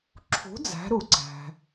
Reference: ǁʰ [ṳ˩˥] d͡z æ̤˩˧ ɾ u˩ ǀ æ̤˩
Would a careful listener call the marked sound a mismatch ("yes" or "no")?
no